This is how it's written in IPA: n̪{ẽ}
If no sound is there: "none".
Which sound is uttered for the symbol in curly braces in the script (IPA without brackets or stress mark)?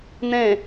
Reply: ẽ